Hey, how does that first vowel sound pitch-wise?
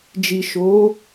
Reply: low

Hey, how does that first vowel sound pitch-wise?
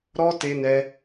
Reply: high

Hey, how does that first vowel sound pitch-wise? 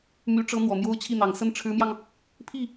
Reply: rising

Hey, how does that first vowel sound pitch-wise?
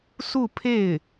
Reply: falling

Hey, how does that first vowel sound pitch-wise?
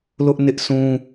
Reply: high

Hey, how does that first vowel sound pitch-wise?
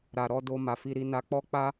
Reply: low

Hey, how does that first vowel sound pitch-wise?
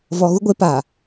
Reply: low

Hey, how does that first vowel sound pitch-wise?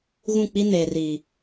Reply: falling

